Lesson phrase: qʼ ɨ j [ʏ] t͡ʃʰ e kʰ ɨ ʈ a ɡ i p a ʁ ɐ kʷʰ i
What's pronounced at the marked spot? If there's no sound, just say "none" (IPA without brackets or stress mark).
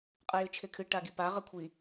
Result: ɨ